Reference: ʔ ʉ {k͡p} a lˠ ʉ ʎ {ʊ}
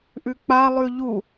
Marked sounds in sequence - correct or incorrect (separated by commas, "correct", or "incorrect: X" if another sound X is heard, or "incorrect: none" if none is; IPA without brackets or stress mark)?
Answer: correct, incorrect: u